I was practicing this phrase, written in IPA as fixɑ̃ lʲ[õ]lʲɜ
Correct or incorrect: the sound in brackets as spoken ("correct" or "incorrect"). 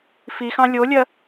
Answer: incorrect